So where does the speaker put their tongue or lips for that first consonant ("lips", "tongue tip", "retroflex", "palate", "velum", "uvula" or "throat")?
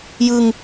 palate